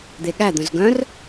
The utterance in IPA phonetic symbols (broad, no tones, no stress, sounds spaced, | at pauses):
d̪ e ɠ æ d̪ œ̃ z ɡ œ̃ r